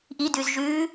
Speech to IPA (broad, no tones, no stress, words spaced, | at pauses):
ʔidʉz ʒʉː